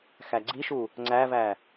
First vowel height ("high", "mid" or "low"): low